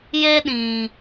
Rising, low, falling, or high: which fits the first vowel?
high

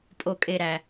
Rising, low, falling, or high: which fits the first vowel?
low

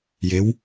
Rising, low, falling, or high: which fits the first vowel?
rising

